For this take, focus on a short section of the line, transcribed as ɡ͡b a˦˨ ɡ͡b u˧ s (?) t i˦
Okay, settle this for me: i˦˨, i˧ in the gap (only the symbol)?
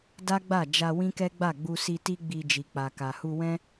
i˧